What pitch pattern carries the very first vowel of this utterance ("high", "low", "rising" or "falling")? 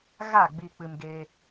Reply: falling